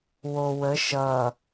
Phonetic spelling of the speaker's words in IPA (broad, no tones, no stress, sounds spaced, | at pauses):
w o w ə ʃ ʌ